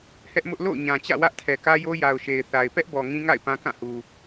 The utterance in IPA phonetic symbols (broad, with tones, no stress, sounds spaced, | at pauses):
h ɛ˦ ʔ m ʊ˦ ʔ l o̰˦˨ ʊ̯ ɲ ã˨ t͡ɕ ä̰˦˨ w ä˦ ʔ tʰ ɛ˨ k ä˦ j o˦ j a˨ ʊ̯ ʃ e˨ ɪ̯ θ a˨ ɪ̯ p ɛ˦ ʔ b ɔ˨ ŋ ĩ˦ ŋ a̰˦˨ ɪ̯ p ã˦ k ã˦˨ h u˨